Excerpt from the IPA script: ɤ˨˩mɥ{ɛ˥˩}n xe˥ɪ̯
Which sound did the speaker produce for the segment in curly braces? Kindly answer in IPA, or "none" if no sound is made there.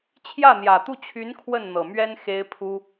ɛ˥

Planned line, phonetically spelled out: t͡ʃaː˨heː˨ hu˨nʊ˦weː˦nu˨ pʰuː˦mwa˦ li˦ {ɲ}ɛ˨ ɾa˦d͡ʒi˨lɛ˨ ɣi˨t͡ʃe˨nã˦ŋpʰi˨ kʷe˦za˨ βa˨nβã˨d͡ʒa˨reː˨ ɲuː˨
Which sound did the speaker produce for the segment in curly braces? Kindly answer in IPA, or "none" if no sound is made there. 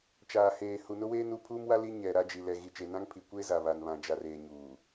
ɲ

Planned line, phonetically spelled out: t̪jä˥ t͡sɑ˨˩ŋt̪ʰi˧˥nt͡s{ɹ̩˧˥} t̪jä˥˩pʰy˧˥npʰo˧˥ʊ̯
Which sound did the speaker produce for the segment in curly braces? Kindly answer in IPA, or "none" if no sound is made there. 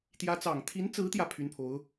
ɹ̩˧˥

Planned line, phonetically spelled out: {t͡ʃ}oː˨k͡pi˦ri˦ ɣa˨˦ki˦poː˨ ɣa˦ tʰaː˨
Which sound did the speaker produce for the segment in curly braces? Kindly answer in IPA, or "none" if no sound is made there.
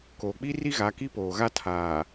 k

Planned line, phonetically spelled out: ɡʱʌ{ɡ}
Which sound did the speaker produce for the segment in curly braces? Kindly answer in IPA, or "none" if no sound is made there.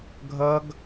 ɡ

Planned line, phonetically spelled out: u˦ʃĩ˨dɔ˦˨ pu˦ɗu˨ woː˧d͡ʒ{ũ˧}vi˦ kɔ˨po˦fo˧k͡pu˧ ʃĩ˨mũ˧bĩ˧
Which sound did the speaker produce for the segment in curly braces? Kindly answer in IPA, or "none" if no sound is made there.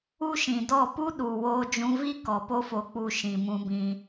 ũ˧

